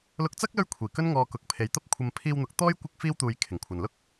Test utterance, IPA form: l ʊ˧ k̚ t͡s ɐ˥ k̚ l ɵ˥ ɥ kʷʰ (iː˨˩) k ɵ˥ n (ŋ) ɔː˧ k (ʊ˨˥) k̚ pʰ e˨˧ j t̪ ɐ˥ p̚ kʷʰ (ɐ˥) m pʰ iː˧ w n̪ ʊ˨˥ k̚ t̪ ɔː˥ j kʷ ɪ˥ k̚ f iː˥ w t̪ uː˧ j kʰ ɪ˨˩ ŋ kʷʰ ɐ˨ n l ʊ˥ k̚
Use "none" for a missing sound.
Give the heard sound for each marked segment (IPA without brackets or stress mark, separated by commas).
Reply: iː˨˩, ŋ, ʊ˨˥, ɐ˧